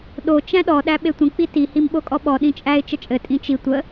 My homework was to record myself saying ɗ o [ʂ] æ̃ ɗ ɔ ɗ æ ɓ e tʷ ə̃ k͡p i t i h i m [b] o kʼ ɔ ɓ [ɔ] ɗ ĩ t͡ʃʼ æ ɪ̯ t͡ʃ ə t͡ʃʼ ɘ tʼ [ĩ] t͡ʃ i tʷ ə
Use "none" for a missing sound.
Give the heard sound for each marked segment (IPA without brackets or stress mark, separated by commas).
t͡ʃ, ɓ, ɔ, ĩ